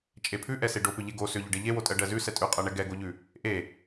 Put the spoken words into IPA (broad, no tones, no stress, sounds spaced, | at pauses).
t͡ʃʼ e pʰ ʉ ʔ ɛ s e ɖ o p ʏ ʎ e ɡ o s ʏ ʎ ʏ ɖ e ʎ e w o tʼ ɜ ɖ ɜ z ʉ s ɛ tʼ ʉ qʼ ɜ ɳ ɛ ɡ ɛ ɡ o ʎ ʉ | ʔ e